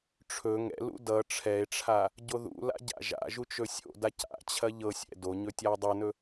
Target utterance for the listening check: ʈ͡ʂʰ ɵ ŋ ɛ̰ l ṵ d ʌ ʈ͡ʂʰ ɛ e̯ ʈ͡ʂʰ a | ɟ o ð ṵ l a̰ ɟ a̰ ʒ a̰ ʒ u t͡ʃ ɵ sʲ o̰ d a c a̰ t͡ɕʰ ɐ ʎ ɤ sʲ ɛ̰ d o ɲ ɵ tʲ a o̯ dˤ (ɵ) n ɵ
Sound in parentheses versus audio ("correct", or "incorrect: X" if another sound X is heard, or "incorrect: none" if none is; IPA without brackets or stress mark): incorrect: ɤ